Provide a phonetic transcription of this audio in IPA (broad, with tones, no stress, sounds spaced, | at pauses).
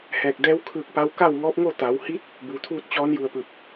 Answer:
h ɛː˧˩ k̚ d ɛː˧˥ w kʰ ɯː˧˩ k̚ p a˧ w k a˥˨ w ŋ ɔː˧˥ p̚ ŋ o˥˨ t̪ a˩˧ w h i˧˥ t̚ | b uː˩˧ t̪ʰ uː˥˨ t̚ t͡ɕ ɔː˧˥ n j u˧˩ ə̯ p ɯː˧˩ p̚